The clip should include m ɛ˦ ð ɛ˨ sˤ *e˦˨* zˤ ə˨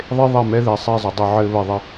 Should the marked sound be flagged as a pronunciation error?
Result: no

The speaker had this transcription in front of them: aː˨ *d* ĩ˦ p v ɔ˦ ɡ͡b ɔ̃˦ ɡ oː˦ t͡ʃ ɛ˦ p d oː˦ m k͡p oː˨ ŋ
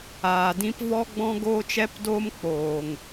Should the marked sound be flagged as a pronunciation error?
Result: no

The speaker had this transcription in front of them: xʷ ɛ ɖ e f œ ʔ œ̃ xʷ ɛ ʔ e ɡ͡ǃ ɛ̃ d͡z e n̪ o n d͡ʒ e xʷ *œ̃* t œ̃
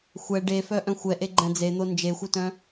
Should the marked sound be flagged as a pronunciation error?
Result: yes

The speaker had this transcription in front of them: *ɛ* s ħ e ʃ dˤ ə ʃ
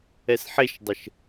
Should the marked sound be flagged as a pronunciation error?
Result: no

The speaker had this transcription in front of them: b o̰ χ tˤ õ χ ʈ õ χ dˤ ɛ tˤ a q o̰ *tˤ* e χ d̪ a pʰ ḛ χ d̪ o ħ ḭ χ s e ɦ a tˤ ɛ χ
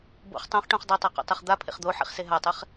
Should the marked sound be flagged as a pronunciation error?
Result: no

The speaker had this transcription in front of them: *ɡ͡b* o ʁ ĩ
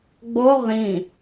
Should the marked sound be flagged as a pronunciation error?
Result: no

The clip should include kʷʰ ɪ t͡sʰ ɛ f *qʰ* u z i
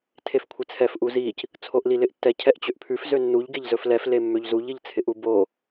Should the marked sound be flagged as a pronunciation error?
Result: yes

